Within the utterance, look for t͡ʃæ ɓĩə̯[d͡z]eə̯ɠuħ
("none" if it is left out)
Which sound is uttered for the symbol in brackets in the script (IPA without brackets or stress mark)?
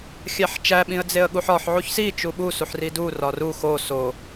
d͡z